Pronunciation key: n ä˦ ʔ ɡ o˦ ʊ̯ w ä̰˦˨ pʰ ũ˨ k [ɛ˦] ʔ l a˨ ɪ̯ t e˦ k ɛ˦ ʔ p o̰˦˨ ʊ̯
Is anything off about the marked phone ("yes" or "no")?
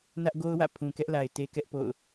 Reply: no